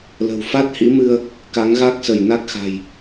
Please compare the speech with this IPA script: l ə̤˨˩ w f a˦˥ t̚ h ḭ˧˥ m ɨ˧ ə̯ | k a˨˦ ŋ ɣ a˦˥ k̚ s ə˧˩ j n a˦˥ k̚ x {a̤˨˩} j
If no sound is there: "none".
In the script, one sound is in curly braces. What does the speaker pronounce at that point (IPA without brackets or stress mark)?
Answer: a̤˨˩